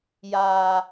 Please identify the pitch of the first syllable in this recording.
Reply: low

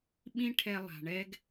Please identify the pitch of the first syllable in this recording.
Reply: high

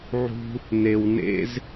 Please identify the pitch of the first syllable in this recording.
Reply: high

